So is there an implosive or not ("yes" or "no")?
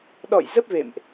yes